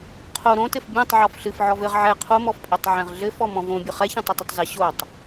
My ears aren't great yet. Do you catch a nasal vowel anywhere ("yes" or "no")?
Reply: yes